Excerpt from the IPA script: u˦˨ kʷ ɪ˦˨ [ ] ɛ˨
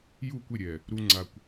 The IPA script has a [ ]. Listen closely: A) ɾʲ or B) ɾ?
A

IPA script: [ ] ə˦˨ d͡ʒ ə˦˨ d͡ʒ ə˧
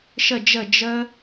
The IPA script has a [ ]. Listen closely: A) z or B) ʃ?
B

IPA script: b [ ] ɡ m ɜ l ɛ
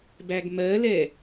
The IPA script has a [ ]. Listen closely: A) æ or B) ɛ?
A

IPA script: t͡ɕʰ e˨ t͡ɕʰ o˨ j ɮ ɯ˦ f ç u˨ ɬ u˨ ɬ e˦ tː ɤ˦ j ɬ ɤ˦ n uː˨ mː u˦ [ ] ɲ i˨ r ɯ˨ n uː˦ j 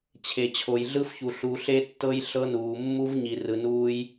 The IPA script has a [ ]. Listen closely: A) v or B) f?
A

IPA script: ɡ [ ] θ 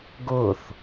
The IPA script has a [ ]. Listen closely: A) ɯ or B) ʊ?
B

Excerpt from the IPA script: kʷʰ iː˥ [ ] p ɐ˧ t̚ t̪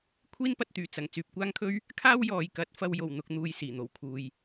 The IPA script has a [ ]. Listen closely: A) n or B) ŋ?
A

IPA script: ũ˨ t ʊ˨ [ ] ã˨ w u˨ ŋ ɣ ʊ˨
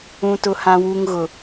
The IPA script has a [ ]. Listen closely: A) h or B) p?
A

